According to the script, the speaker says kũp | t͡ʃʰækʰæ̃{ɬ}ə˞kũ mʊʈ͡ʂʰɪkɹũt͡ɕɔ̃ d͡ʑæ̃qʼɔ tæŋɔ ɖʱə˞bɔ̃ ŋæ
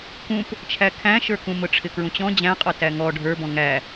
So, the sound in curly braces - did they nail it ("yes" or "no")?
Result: no